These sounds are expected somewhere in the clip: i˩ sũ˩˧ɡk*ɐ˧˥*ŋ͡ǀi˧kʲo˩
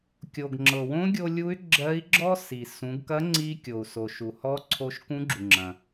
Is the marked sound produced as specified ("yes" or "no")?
yes